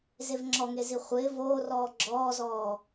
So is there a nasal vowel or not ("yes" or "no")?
no